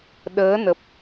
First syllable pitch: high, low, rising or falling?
rising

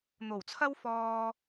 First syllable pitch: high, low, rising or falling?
low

